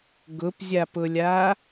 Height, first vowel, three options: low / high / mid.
high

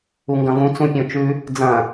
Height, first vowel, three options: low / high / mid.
high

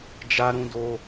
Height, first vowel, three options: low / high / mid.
low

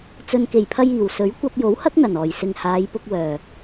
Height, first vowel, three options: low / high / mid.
mid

